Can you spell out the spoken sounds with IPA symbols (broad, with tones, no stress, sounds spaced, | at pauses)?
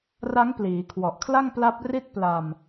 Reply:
r a˦˥ ŋ p l iː˩˦ kʰ w ɔ˨˩ ʔ kʰ l a˥˩ ŋ p l a˦˥ p̚ r i˥˩ t̚ p l a˧ m